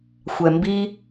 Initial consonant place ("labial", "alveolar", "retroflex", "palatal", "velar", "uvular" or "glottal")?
velar